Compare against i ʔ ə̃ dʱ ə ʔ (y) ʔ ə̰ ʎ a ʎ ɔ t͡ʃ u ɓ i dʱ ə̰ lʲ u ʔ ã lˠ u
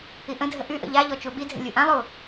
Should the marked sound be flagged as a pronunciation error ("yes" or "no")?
no